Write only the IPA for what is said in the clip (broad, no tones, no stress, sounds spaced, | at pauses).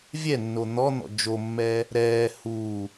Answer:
vʲ ɛ nː o n̪ ɔ n̪ ɔ̰ d͡ʒ o mː ɛː | ɾ ɛː h uː